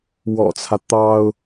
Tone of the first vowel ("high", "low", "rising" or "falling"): low